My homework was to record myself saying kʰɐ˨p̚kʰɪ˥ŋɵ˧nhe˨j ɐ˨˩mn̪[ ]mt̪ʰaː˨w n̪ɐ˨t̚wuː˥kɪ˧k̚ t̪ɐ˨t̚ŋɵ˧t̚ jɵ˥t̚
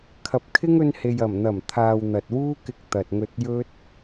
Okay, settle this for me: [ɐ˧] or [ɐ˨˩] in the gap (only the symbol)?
ɐ˨˩